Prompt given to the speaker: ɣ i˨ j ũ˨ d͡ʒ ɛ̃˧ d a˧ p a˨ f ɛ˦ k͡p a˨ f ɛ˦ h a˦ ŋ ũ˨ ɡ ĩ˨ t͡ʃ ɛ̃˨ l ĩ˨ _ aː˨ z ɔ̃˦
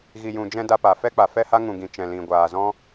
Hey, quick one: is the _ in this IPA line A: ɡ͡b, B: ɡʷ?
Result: B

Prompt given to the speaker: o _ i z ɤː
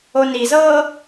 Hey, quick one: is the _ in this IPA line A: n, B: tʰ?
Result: A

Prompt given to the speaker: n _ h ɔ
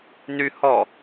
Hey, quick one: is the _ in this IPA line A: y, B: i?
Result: A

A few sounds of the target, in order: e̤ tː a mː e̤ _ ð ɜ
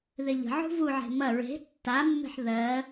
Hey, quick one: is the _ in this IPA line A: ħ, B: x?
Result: A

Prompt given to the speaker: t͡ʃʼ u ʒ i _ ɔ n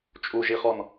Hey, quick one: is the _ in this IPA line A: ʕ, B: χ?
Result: B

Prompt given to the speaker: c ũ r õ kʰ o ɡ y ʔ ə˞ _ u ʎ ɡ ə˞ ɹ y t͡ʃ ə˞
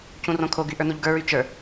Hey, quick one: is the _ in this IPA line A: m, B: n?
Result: B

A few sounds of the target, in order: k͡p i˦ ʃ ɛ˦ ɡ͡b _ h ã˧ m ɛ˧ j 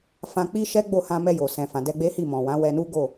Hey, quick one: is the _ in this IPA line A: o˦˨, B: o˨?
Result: A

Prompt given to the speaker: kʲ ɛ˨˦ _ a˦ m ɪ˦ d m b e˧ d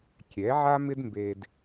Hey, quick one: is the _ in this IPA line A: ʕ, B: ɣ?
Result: A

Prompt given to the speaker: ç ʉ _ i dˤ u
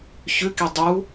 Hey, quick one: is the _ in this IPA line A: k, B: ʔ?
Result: A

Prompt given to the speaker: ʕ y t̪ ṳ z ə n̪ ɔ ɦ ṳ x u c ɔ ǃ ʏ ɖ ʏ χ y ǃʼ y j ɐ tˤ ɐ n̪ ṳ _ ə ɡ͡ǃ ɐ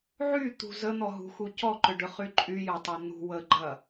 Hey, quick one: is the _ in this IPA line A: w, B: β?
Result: A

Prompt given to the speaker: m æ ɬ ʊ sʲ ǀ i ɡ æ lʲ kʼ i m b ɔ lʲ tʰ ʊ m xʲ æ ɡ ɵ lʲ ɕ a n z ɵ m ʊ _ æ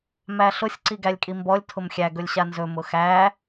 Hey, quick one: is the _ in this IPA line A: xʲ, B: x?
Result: B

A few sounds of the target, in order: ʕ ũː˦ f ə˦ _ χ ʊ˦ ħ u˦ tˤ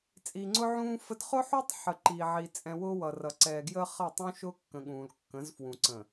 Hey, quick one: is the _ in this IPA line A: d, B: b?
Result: A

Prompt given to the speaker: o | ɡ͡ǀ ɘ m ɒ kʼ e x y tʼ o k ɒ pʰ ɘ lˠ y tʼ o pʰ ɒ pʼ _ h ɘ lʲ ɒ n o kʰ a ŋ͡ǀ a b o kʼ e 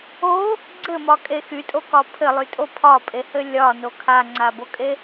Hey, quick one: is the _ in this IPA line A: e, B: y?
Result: A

